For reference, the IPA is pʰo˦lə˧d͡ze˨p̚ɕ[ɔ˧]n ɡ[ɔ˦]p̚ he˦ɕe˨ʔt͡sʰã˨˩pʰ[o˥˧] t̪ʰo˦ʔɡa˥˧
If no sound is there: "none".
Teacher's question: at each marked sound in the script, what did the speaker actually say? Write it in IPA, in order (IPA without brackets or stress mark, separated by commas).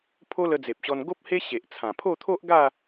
ɔ˧, o˦, o˥˧